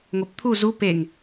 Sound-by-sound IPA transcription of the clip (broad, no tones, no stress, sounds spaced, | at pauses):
ŋ o p t̪ʰ u z u p e ŋ